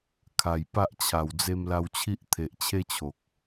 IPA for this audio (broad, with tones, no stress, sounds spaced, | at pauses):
kʰ a˨˩ j p a˦ ʔ t͡ɕʰ a˨˩ w d͡z e˧ m l a˧ w t͡ɕʰ i˦ ʔ t̪ʰ e˨ ʔ t͡ɕʰ e˦ t͡ɕʰ o˨ k̚